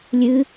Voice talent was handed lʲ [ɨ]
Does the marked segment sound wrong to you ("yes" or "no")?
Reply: no